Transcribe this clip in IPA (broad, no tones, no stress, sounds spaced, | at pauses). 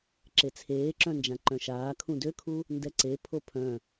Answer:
ǁ e t͡sʰ eː ǁ œ̃ n d͡ʒ ã ǃ œ̃ ʃ aː kʰ ũ d ø kʰ u | n d ɛ ǀ e pʰ o pʰ œ̃